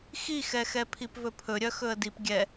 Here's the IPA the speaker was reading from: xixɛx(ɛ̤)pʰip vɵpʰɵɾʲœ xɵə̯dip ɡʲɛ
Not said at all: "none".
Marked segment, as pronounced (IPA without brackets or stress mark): ɛ